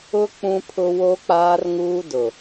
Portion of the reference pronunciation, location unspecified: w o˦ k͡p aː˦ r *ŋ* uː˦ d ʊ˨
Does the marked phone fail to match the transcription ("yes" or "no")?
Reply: no